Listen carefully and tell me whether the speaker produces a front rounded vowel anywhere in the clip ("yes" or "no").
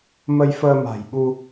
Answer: no